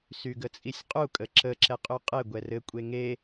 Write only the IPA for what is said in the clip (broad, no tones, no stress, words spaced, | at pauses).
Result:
syɡət͡sʼisʲqʼu kʼəǁə ǁɛqʼyqʼɘ ɡʷɛrɘ kʷʼeŋe